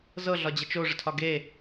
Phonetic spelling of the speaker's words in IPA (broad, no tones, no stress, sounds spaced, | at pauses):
z ɤ ɮ ɒ d͡ʑ ə t͡ʃ o ʐ ə tʰ ɒ ɡ e